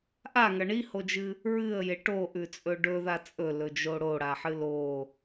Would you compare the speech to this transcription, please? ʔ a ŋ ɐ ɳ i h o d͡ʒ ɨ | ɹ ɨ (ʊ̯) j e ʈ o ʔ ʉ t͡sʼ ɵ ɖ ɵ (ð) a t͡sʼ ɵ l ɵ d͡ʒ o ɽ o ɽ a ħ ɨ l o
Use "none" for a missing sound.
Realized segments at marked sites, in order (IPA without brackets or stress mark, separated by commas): ə̯, ð